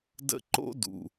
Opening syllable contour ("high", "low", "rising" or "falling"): high